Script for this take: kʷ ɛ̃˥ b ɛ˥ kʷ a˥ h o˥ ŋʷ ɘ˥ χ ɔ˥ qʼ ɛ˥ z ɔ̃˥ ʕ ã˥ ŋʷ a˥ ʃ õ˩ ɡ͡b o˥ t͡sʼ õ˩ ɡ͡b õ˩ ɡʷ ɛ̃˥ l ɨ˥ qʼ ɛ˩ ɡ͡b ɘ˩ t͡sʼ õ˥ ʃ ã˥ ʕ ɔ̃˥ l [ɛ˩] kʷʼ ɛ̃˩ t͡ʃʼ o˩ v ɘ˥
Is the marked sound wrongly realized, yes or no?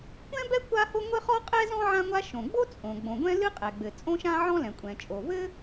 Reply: yes